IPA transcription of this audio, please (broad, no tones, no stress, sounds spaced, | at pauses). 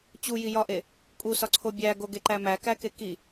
t͡ɕ u j i j ɒ ʔ e | kʼ u s ɒ ǀʰ o bʲ æ ɡ o ɡ e ǃ æ m æ k æ k e k i